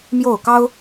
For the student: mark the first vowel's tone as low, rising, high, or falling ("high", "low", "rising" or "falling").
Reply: falling